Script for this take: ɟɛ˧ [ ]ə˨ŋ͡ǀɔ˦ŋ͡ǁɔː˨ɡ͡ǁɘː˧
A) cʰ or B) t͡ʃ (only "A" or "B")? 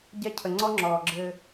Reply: A